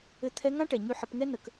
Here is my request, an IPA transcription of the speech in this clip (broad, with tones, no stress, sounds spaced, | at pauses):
ɘ˧ t̪ʰ ɛ˧˥ ŋ ã˥ ʈ ɛ˩ ɲ y˧ ħ ə˩˧ p ŋ ɛ˥ n ə˩ k